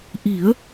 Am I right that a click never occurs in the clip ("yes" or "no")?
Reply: yes